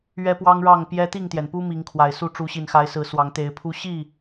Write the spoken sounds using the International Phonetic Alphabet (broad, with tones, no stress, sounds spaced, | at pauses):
ɥ ɛ˦ p w ɑ˦ ŋ ɻ ɑ˥˨ ŋ p j ɛ˦ t̪ i˥˨ ŋ t̪ j ɛ˩ n p u˦ m i˨˦ ŋ kʰ w a˨˩ ɪ̯ s u˥˨ ʈ͡ʂ u˨˦ ɕ i˨˩ n x a˨˦ ɪ̯ s ɹ̩˨˦ s w ɑ˨˦ ŋ t̪ e˨˦ ɪ̯ pʰ u˦ ɕ i˥˨